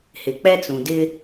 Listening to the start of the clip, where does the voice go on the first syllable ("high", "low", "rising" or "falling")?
low